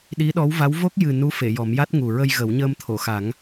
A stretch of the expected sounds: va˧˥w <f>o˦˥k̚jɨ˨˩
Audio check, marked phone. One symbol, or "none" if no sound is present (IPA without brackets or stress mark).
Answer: v